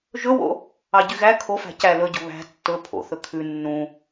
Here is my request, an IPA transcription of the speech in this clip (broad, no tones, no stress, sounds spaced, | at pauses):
ʒ ɵ w o̰ | ɑ ɟ y ɣ æ kʰ o f æ̤ c æ l ɵ ɟ o̤ β æ̤ tː ɵ pʰ o̰ θ ɵ kʰ ʉ nː ũ